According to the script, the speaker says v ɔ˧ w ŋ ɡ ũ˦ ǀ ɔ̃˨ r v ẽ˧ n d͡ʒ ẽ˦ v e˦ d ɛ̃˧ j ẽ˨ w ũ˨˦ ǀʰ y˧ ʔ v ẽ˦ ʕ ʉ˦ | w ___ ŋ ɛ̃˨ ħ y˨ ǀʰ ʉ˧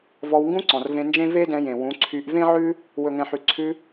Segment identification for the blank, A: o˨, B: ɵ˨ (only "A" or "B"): B